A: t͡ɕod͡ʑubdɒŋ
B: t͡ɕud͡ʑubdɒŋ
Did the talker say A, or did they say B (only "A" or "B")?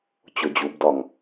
A